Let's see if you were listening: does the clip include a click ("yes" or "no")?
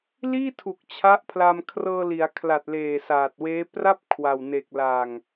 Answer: no